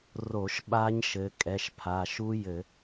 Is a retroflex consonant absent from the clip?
yes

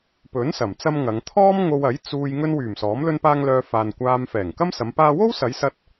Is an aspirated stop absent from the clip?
no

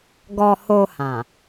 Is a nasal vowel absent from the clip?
no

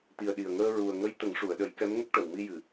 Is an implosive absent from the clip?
no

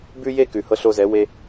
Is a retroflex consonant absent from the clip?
yes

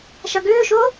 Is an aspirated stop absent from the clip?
yes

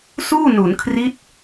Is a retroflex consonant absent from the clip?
yes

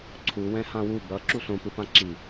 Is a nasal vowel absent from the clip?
no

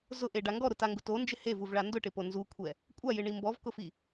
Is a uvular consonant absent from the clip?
yes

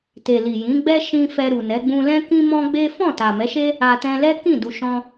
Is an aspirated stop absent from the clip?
yes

